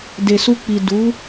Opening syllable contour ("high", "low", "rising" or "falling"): low